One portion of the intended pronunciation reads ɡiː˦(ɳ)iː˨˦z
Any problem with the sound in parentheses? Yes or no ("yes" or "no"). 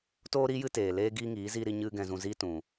yes